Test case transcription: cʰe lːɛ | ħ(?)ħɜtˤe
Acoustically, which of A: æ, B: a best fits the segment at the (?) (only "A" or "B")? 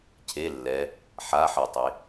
B